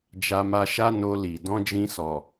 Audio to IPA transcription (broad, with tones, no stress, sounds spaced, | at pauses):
d͡ʒ a˧ m a˧ ʃ a˦ n o˧ l i˨ d ɔ̃˧ d͡ʒ ĩ˧ s ɔ˨